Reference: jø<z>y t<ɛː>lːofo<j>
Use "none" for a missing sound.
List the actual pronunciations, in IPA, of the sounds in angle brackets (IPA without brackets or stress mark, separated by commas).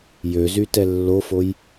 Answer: z, ɛ, j